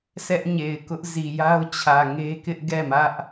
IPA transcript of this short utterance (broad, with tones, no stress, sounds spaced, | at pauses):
s ɛ˦ ʔ ɲ e˨ ɪ̯ k ʊ˦ ʔ z i˨ j a˦ ʊ̯ t͡ɕʰ ä˨ ŋ e˦ k ɪ˦ ʔ ɡ ɛ˦˨ m ä˦ ʔ